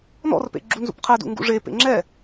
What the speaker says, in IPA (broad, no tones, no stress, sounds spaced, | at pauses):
n ɔ̰ r p ḛ ɡ͡ǁ u n z ṵ p qʰ ɛ d ṵ ŋ ɡ ṵ ʐ e p ḛ ŋ͡ǁ ɛ